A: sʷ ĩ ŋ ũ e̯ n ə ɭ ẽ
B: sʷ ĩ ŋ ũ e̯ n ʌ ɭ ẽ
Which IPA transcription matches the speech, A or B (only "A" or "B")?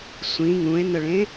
A